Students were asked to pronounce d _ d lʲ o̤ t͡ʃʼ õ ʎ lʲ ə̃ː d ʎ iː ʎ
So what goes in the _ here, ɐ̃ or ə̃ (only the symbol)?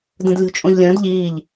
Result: ə̃